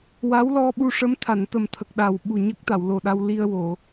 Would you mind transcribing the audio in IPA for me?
w a˧˥ w l ɔ˧ ɓ u˧ ʂ ə˧˥ m t̪ʰ a˨˩˨ n t̪ ə˨˩ m t̪ʰ ə˨˩ k̚ ɗ a˨˩ w ɓ u˨˩ ɲ ə˦˥ k̚ t̪ a˨˩˨ w l o˨˩ ɗ a˧ w l i˧ ə̯ w o˨˩˨

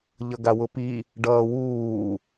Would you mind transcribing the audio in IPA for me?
ʎ ʌ ɡ a w ʊ p i | ɖ ʌː w uː

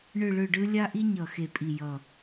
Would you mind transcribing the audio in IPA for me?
ɳ ɯ˦˨ ɭ ɯ˦˨ ɖ ɯ˥ lʲ a˥ ʔ i˥ ɲ ʌ˨˩ x e˨˩ pʼ i˨˩ j ʌ˨˩

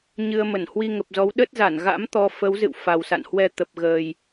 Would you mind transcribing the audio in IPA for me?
ɲ ɨ˧ ə̯ m ə˧˩ n h w i˧ ŋ ə˨˩ p̚ z ɔ˨˦ w ɗ ə˦˥ t̚ z a˧˩ n ɣ a̰˧˥ m t̪ ɔ˧ f ə˨˦ w z ɨ̰˧˨ w f a˨˩ w s a̰˧˨ n h w ɛ˧ t̪ ə˨˩ p̚ ɣ əː˨˩ j

